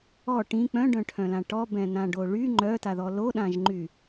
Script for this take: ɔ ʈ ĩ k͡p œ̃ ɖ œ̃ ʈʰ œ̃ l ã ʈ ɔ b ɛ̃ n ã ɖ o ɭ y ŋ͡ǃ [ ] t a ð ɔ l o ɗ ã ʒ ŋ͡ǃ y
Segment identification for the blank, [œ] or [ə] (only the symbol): œ